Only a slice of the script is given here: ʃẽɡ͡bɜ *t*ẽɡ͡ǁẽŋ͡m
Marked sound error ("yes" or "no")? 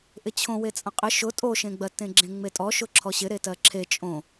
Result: no